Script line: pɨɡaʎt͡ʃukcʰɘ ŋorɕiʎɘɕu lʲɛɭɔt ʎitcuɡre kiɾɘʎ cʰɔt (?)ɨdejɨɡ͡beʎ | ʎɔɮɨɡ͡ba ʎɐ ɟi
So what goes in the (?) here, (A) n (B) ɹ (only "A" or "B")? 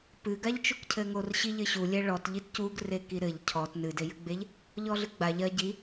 A